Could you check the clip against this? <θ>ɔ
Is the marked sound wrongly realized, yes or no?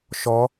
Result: yes